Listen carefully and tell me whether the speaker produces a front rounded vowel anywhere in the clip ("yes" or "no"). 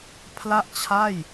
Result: no